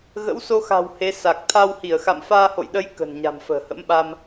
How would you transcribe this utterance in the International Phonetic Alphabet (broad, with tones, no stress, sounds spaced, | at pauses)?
ɣ ə̰˧˥ w s o˧ x a̤˨˩ w h e˨˦ s a˨˩ k̚ t̪ʰ a˧ w h i˧˩ ə̯ x a̰˧˨ m f aː˧ h o̰˧˨ j ɗ ə˨˦ j k ə̤˨˩ n ɲ a̤˨˩ m f ə̤ː˨˩ h ə̰˧˥ m ɓ a˧ m